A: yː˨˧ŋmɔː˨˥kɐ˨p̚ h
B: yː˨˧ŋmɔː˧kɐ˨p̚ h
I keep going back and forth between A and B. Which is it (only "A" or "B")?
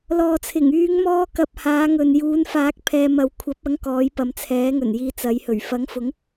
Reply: B